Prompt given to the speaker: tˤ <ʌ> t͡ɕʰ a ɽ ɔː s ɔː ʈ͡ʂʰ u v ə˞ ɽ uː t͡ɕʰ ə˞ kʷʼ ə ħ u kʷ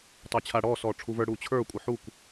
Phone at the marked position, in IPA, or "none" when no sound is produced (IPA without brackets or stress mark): ə˞